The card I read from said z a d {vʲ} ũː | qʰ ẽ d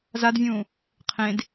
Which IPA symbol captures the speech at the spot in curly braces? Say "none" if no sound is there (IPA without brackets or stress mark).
vʲ